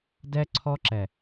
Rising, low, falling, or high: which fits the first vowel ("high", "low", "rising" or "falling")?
high